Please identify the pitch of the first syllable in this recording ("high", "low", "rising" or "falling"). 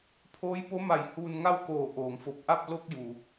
rising